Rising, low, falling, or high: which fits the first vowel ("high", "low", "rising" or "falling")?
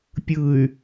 low